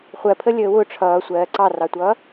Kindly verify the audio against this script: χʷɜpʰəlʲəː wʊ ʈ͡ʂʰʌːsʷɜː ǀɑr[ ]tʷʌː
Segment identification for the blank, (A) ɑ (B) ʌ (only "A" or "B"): A